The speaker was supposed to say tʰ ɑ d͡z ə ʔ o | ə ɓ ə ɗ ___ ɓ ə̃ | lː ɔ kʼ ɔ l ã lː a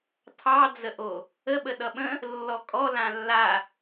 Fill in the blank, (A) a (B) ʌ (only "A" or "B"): B